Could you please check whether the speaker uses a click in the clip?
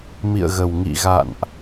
no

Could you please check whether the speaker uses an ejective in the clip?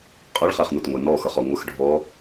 yes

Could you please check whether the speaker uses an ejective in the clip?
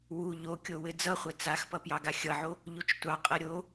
yes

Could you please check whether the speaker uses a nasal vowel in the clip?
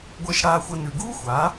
no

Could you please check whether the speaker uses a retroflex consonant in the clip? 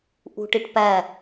yes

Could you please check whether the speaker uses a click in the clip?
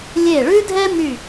no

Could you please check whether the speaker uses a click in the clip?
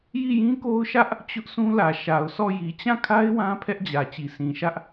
no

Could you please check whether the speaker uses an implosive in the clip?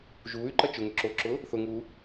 no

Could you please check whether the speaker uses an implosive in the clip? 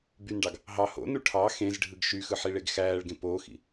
no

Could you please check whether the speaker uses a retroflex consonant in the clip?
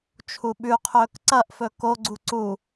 no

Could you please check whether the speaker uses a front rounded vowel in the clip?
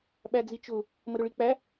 no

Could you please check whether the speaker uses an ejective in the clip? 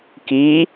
no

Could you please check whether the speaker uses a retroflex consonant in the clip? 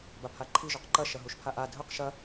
no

